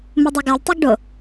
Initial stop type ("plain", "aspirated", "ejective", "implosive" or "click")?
plain